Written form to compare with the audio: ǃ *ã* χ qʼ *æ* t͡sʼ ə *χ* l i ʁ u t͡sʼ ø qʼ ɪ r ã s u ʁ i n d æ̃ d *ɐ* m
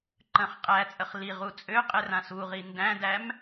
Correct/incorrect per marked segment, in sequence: incorrect: ə̃, correct, correct, incorrect: æ

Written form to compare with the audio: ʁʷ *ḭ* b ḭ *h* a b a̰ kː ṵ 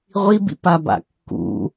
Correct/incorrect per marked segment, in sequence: incorrect: i, incorrect: p

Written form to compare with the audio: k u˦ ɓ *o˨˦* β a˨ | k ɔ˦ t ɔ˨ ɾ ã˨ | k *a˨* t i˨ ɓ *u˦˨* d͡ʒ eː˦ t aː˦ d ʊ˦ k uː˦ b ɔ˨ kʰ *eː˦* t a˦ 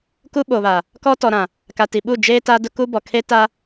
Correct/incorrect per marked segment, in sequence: incorrect: o˨, correct, correct, incorrect: e˦

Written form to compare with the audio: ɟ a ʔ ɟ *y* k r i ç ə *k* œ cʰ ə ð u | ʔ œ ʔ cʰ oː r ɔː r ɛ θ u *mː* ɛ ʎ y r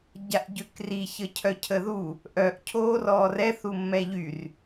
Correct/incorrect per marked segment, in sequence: incorrect: ø, incorrect: cʰ, correct

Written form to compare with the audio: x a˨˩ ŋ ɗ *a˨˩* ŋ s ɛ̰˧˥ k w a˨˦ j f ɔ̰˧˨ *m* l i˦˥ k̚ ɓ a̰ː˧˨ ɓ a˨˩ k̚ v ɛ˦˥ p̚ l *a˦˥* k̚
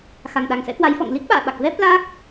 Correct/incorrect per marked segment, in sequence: correct, incorrect: ŋ, correct

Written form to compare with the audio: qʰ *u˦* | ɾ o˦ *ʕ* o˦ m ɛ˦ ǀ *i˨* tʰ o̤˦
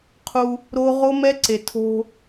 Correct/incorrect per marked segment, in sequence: correct, incorrect: ʁ, incorrect: e˨

